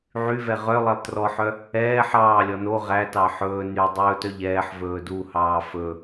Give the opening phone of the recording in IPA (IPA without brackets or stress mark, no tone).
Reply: ʕ